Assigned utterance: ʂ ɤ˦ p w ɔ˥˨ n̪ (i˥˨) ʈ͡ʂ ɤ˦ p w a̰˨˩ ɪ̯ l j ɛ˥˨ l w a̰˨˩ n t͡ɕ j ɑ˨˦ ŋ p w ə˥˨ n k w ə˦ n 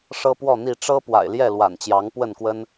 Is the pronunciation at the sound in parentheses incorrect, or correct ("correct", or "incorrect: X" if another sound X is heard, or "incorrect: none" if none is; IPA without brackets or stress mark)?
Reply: correct